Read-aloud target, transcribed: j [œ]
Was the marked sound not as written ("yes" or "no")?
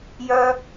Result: no